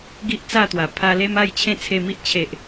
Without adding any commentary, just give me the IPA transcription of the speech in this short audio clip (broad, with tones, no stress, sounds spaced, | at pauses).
ɡ i˦ ʔ t͡s a˥˧ t̪ w a˨˩ pʰ a˧ l e˦ m a˥˧ j t͡ɕʰ ẽ˥˧ t͡sʰ e˧ m i˦ ʔ t͡ɕʰ e˨ ʔ